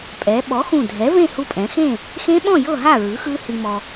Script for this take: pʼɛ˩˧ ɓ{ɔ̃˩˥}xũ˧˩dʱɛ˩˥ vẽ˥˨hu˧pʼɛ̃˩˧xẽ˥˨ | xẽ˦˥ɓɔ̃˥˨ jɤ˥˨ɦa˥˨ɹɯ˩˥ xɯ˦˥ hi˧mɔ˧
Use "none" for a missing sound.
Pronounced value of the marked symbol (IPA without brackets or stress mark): ɔ˩˥